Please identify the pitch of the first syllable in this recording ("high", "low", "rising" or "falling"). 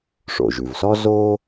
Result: low